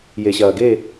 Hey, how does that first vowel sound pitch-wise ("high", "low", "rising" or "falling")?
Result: low